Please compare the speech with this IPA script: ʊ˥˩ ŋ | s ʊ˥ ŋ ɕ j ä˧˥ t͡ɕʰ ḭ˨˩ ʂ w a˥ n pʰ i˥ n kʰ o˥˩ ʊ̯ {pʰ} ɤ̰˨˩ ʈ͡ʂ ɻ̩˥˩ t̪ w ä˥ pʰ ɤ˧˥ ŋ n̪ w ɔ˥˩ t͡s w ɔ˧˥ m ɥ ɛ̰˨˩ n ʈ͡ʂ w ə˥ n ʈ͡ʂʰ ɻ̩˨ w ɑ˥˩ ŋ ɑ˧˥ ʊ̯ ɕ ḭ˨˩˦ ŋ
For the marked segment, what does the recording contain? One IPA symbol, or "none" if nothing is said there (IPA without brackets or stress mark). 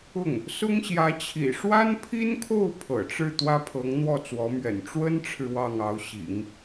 pʰ